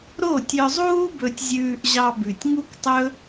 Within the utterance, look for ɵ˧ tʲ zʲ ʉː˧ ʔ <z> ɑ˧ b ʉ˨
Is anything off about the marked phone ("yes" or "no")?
yes